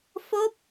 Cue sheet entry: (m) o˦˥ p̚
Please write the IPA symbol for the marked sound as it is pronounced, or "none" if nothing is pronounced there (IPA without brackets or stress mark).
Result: f